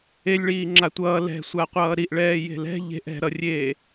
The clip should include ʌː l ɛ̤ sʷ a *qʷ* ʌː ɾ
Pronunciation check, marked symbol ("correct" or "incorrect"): correct